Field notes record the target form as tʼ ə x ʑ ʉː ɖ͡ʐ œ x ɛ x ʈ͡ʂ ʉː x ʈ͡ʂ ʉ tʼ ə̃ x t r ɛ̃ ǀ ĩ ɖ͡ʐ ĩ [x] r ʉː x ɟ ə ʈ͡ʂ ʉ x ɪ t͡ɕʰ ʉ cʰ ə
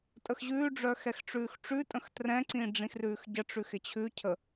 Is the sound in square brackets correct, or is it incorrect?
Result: correct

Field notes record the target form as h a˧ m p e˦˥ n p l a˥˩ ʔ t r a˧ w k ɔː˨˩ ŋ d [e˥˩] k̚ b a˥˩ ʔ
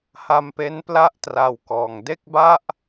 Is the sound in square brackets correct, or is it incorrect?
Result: correct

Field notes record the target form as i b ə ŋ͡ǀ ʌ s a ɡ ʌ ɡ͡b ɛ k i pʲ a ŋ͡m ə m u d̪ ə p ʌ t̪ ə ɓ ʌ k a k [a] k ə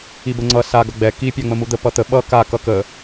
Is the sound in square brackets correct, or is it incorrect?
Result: incorrect: ʌ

